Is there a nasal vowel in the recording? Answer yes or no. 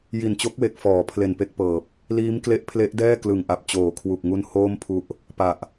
no